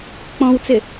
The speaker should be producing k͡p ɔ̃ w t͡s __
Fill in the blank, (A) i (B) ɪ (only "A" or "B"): B